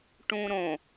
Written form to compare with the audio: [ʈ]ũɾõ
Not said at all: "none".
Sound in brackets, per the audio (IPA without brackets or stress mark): ʈ